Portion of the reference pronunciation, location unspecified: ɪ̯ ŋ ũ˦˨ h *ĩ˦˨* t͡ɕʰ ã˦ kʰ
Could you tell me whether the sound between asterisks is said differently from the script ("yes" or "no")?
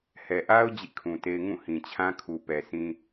yes